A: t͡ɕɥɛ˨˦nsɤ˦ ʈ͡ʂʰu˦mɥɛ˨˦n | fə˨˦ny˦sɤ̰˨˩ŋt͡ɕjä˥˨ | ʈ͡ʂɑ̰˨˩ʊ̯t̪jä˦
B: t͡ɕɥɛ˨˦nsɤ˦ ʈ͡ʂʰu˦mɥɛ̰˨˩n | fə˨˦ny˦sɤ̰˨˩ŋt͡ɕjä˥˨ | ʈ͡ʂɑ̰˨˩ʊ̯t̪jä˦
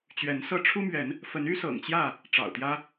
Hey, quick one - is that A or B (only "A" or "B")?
A